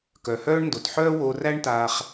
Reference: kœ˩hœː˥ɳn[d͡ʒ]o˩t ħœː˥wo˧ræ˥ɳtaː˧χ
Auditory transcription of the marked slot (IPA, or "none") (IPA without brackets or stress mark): d